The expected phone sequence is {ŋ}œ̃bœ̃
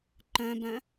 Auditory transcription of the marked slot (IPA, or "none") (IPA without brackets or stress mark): ǃ